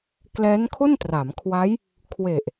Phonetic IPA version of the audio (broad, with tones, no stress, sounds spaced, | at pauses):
k l ɛː˦˥ n kʰ o˥˩ n t r a˩˦ m kʰ w a˦˥ j | kʰ w e˨˩ ʔ